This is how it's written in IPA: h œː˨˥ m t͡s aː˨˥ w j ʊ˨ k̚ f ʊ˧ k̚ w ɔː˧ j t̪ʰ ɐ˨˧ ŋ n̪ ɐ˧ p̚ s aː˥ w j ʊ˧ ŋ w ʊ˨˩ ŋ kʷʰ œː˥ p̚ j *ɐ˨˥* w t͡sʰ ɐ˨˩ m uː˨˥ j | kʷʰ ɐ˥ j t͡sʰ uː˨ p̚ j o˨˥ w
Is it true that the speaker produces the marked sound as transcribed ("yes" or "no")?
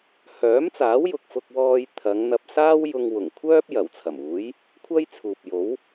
no